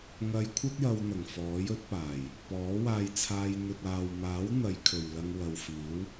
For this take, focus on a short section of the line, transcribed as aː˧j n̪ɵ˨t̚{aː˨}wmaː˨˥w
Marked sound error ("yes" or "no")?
no